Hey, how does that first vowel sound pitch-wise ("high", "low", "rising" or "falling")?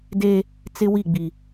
high